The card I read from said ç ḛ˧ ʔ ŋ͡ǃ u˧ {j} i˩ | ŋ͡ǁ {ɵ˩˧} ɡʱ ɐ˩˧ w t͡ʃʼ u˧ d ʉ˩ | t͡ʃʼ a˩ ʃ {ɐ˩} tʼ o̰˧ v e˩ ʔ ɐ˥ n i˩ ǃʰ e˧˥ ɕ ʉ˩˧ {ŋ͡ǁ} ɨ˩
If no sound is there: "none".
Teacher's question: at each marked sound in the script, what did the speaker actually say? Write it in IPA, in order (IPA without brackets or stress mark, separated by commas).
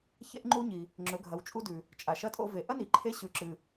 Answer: ɲ, ɵ˩˧, ɐ˧˥, ǁ